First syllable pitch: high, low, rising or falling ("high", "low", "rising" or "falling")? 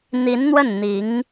rising